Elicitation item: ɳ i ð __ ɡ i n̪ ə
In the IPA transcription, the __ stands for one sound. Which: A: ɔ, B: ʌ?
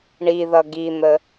B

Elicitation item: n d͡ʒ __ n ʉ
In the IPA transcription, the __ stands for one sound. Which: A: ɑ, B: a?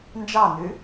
A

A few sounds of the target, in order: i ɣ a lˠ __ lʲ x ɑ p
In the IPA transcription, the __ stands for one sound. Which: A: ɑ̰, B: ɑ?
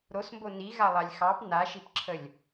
B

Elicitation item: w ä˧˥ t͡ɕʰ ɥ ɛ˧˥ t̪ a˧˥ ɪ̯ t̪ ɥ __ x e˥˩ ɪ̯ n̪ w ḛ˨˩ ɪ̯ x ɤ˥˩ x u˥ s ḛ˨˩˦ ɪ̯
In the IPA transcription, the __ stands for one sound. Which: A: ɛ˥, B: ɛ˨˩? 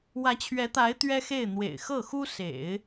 A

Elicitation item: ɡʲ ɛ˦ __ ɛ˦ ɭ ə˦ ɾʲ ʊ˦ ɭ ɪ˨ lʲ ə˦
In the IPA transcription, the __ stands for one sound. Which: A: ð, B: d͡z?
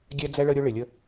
B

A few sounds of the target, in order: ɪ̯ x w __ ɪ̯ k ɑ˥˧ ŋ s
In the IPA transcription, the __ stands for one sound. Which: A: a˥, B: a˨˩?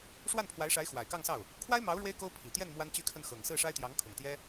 B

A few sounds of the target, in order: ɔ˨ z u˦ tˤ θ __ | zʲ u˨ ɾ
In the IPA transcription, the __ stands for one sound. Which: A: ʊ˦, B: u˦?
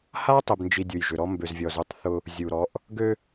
A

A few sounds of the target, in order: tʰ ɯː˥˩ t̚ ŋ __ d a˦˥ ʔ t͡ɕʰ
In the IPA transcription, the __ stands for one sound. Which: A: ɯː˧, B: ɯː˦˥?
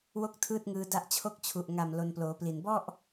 A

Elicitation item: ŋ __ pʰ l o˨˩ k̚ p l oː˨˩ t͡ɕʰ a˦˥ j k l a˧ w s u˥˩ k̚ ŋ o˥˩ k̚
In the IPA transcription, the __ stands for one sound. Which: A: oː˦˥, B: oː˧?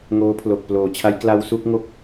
A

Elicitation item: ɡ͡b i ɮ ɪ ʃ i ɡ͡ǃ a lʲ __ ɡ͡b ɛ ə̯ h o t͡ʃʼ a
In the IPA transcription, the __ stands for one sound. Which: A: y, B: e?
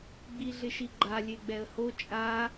B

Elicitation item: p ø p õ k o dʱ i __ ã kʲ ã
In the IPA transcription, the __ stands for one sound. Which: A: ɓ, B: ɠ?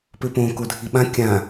A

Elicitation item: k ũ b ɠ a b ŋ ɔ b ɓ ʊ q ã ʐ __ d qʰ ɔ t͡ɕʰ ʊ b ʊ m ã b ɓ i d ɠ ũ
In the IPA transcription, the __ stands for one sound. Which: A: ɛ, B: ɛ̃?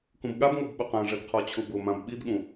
A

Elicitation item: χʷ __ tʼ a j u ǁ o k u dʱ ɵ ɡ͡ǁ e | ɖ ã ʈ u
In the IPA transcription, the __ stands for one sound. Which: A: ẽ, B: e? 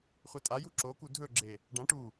B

